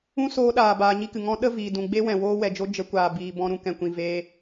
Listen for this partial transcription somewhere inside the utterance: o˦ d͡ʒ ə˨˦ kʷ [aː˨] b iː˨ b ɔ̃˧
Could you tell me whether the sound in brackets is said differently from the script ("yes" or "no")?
no